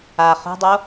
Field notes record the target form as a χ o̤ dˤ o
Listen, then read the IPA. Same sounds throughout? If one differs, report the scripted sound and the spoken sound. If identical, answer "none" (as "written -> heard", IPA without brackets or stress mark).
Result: none